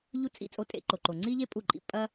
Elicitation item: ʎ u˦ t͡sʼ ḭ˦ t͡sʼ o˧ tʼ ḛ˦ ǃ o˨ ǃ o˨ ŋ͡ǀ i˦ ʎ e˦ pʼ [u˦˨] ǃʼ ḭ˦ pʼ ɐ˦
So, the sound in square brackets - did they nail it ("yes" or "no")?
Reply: yes